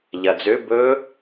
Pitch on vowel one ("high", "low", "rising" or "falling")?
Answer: low